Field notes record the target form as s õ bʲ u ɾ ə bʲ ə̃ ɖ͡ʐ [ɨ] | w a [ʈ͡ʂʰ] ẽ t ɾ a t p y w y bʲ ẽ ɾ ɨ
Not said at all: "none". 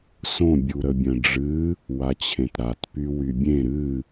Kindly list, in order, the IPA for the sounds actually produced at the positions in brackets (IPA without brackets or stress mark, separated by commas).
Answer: ɨ, t͡ɕʰ